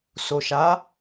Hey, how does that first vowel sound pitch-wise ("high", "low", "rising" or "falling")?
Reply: low